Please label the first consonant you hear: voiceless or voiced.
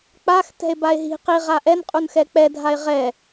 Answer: voiceless